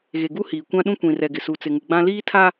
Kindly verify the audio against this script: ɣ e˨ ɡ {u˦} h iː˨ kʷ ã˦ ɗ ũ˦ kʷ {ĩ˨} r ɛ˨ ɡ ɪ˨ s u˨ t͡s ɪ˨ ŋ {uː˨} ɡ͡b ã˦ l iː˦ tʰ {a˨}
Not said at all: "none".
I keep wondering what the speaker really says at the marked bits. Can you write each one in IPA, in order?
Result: u˦, ĩ˨, u˨, a˦

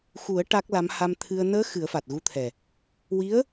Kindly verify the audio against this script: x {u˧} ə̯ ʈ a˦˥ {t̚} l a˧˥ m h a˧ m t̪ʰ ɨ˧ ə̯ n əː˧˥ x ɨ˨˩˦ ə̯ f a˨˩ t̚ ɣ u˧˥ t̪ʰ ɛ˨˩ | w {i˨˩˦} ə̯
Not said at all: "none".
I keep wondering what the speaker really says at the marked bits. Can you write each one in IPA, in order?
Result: u˨˩˦, k̚, i˧˥

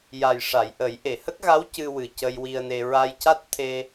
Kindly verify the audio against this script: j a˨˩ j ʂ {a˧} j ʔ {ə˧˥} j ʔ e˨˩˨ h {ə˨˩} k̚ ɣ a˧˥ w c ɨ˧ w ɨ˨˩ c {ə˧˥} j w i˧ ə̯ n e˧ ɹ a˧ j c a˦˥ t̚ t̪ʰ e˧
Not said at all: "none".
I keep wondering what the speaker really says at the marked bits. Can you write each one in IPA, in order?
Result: a˨˩˨, ə˨˩˦, ə˦˥, ə˧

